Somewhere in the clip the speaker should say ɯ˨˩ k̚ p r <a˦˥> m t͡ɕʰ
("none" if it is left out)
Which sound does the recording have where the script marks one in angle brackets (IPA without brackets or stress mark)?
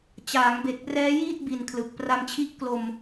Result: a˧